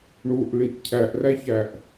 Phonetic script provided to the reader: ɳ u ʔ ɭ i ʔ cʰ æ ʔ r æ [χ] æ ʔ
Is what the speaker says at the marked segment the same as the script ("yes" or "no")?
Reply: no